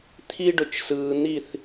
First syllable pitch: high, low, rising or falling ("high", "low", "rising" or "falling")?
high